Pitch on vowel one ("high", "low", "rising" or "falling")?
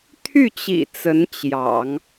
falling